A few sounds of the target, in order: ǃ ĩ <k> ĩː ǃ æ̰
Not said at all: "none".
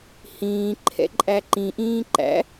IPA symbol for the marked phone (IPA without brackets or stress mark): ʔ